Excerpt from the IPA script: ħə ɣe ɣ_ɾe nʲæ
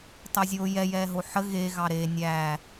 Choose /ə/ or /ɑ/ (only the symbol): ɑ